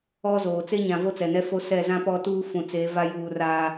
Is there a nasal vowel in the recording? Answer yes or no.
yes